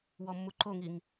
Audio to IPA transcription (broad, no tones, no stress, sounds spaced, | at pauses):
w ɔ mː u ǃ o ŋ i ŋ